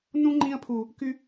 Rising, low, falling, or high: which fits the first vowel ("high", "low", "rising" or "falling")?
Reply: high